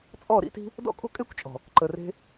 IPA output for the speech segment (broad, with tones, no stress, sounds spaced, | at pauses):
t͡sʼ ɔ˦˨ ɾ ḭ˦ t i̤˦ | d ɔ̰˦ kʼ o̤˦ kʼ e˦ kʷ t͡ʃʼ ɔ̤˨ | ǃ ə˨ r e̤˧